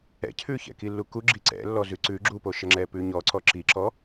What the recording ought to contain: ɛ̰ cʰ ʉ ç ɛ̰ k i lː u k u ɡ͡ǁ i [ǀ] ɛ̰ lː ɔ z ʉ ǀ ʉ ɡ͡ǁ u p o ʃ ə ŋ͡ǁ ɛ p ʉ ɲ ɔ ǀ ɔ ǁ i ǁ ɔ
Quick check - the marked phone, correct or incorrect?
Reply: correct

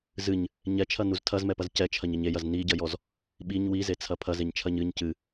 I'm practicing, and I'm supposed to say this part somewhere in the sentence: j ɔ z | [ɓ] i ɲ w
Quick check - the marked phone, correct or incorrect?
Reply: correct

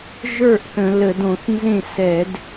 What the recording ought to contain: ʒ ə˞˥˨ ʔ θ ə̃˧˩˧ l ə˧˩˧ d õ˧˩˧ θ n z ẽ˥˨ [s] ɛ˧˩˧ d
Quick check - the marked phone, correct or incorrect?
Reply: correct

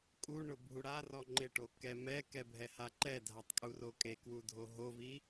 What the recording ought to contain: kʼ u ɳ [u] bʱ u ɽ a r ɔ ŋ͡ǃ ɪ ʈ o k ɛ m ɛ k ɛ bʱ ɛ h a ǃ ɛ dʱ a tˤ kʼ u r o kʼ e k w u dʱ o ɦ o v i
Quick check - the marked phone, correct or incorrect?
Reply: incorrect: ʊ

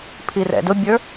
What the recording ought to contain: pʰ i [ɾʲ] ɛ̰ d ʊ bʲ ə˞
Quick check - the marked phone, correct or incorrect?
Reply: incorrect: r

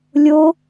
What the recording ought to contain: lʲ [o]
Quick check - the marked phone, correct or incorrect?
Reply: correct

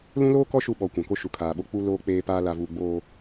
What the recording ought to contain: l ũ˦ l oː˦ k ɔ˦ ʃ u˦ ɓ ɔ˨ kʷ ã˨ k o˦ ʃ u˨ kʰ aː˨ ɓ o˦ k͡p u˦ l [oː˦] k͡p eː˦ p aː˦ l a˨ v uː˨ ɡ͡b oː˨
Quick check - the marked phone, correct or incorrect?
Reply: correct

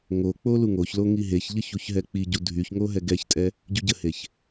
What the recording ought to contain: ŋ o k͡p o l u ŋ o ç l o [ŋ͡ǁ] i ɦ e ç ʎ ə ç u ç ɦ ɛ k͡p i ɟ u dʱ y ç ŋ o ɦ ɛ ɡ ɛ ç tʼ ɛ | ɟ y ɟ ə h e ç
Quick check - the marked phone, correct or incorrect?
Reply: incorrect: ŋ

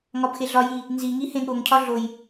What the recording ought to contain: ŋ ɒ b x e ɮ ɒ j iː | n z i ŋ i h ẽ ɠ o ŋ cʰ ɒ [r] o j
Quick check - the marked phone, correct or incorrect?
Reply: incorrect: ɮ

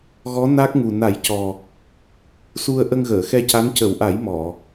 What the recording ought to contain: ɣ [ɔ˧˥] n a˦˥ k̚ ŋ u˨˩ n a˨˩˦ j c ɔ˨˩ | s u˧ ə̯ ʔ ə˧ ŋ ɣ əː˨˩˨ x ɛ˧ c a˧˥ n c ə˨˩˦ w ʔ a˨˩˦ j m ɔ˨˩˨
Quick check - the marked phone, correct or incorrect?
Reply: correct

